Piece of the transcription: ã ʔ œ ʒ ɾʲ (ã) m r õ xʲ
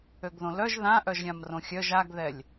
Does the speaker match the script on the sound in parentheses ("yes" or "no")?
yes